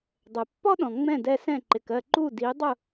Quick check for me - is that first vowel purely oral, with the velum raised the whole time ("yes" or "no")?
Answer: yes